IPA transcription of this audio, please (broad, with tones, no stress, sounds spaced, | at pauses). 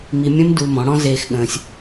m i˧ mʲ ə̃ː˦ m d u˧ m ɔ̃˨˦ ɽ ɔ̃˦ z eː˦ x ɠ ə̃ː˦ sʲ